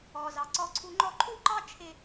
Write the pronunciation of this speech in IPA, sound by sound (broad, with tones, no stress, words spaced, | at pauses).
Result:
ɔ˩zɑ˩ ǀɔ˧ǀʰu˧ŋ͡ǃɔ˥ ǃʰu˥ǃɑ˥t͡ʃʰɪ˧